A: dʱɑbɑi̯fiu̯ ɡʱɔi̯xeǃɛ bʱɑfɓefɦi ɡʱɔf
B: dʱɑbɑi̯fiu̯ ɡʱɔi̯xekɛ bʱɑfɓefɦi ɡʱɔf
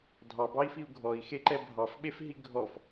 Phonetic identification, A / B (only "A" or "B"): A